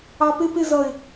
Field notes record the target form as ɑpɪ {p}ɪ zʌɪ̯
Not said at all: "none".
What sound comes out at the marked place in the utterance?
p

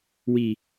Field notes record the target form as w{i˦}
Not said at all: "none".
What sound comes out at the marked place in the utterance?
i˦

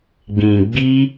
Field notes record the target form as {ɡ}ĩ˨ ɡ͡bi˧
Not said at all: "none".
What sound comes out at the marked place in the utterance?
ɡ͡b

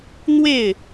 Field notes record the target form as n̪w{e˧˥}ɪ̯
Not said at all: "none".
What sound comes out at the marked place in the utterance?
e˥˩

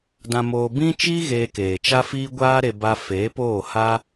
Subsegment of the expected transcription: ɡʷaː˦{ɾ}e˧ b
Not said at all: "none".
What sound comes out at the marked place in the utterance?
ɾ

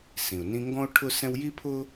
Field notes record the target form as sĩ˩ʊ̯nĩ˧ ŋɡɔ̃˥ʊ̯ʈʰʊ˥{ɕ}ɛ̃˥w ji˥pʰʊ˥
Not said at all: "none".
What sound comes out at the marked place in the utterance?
s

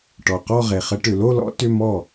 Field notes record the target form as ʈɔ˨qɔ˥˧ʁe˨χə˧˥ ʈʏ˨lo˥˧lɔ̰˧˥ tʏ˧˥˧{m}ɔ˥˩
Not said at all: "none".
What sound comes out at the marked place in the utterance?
m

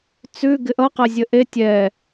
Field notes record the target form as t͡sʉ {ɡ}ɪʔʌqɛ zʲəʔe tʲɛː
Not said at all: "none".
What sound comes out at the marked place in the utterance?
ɡ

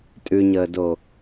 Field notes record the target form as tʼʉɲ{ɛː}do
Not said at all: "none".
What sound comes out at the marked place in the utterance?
əː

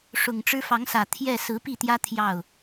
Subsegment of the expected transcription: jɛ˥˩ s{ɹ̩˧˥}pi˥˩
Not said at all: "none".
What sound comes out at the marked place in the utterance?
ɹ̩˧˥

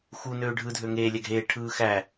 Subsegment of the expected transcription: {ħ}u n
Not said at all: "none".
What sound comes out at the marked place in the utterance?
x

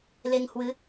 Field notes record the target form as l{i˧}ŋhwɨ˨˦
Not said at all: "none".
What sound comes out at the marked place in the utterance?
e˧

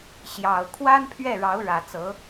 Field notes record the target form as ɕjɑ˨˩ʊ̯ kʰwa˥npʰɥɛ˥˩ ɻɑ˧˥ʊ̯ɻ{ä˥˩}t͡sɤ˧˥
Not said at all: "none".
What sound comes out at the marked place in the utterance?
ä˨˩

